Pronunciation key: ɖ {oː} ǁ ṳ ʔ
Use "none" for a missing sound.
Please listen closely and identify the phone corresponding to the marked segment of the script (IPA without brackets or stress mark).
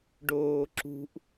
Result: oː